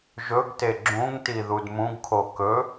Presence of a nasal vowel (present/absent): present